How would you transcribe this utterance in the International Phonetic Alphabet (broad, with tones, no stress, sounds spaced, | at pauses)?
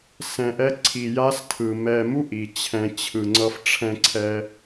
s ɛ̃˨ ʔ ɛ˧ ǀʰ i˨ j a˧ s tʰ ɯ˨ m ɛ˧ m u˦ ʔ i˨ t͡ɕʰ ɛ̃˧ t͡ɕʰ ɯ˨ ŋ͡ǀ ʌ˧ f ʈ͡ʂʰ ɛ̃˧ ǀʰ ɛ˧